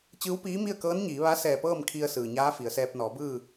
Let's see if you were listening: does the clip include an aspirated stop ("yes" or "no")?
yes